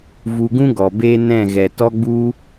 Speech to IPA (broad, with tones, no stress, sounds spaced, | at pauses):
v u˧ ɡ ũ˦ ɡ ɔ˨ b eː˧ n ɛ̃˦˨ ɣ ɛ˨ t ɔ˦ ɡ͡b u˦